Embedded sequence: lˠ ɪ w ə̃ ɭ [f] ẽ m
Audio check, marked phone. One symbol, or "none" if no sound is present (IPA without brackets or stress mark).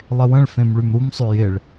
f